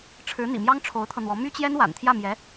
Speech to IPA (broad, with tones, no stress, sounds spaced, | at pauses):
ʈ͡ʂʰ ɻ̩˧˥ n̪ ḭ˨˩ m j ɑ˥ ŋ ʈ͡ʂʰ o˧˥ ʊ̯ t̪ʰ ɤ˧ n̪ w ɔ˧˥ m y˥ t͡ɕ j ɛ˥ n w a̰˨˩ n t̪ʰ j ä˥˩ m j ɛ˧˥